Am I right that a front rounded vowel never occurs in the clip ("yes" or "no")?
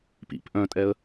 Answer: no